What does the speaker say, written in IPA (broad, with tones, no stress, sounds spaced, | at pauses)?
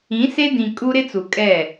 ĩ˨˦ s e˦ d ĩ˨ kʼ u˦ ɾ ɪ˦ t͡s u˨ kʼ ɛ˦˨